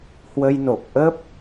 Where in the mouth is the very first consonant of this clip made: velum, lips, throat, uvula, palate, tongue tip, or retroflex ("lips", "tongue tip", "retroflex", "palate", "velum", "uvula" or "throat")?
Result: throat